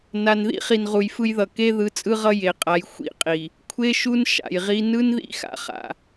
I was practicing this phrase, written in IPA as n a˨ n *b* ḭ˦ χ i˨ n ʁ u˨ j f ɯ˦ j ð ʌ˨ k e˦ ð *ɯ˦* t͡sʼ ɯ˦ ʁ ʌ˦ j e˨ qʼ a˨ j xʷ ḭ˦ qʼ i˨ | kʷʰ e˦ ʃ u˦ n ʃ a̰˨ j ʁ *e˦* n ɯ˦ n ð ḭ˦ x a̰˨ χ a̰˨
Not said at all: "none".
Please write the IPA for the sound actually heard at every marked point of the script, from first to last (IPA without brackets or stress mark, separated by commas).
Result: ð, ɯ˨˦, i˦